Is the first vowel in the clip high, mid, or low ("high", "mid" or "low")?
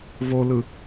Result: mid